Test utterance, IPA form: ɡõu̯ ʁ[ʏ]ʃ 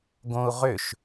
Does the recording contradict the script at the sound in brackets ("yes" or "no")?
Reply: no